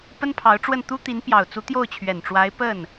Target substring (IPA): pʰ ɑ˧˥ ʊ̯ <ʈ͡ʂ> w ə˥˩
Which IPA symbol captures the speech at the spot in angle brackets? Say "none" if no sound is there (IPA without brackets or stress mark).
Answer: ʈ͡ʂ